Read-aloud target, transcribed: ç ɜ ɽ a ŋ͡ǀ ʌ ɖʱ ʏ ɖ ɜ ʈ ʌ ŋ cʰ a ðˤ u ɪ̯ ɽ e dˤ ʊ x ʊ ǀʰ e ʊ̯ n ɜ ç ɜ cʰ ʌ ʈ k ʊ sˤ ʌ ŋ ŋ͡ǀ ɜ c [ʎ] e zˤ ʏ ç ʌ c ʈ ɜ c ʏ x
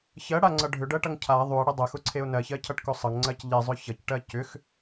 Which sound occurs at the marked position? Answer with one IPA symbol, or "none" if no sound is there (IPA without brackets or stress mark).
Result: ʎ